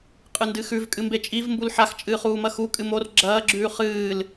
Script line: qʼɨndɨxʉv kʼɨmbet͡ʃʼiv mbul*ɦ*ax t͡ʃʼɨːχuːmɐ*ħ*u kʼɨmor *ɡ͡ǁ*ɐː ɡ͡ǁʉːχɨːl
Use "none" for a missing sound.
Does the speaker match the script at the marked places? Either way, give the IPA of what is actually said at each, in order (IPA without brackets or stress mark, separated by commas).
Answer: ħ, x, ɡ͡ǁ